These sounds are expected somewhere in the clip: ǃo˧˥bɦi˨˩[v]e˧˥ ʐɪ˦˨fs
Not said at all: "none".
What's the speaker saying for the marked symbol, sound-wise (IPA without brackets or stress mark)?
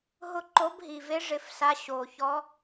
v